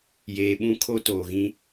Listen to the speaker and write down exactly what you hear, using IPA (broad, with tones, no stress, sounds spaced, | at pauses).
j eː˨ ɓ ũ˦ kʰ o˦ t oː˨ ɣ ĩ˦